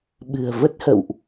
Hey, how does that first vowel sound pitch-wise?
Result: low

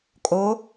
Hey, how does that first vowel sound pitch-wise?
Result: rising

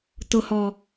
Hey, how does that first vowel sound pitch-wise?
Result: low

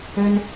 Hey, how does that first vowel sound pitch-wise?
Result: high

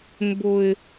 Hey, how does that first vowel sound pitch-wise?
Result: low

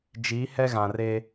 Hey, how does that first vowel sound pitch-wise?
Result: rising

